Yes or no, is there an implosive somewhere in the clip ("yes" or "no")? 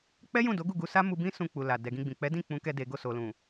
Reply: no